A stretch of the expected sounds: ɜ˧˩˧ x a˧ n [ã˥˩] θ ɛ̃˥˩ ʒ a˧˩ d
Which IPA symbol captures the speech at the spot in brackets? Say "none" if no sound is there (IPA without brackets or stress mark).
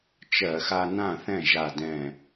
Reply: ã˥˩